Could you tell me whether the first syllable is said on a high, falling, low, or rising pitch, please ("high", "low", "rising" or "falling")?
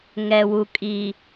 low